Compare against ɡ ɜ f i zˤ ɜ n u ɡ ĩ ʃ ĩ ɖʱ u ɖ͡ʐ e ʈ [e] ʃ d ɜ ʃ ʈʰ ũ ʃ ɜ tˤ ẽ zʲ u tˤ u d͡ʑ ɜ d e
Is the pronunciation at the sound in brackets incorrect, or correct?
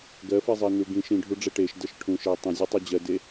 correct